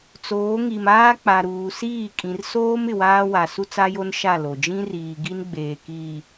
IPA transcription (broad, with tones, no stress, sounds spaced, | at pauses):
t͡s oː˨˦ ŋ i˨ m aː˦ k͡p a˨ ɾ uː˨ s iː˦˨ kʼ ĩ˨ r s oː˦ m ɪ˨ w aː˦ w a˨ s u˦ t͡s a˦ j o˦ n ʃ a˦˨ l o˨ d͡ʒ ĩ˦ r iː˨ ɡ i˦ n ɡ͡b eː˨ k iː˨